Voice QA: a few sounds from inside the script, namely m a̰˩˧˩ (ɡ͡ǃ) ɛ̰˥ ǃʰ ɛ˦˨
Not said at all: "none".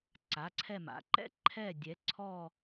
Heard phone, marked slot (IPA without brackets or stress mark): ǃ